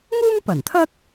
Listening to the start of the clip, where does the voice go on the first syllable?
high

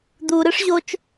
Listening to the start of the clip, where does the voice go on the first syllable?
low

